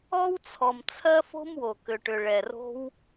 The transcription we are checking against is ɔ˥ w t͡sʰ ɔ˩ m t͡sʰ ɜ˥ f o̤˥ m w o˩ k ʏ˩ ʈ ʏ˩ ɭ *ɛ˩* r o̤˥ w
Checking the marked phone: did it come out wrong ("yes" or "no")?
no